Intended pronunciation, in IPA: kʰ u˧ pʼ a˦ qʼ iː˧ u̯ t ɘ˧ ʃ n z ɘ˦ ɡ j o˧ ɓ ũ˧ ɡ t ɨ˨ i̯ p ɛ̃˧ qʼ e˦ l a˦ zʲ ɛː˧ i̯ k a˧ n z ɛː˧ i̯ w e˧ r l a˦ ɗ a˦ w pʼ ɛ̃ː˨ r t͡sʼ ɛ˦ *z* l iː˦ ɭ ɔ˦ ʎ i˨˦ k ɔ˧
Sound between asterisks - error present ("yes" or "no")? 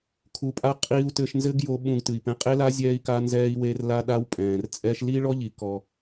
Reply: yes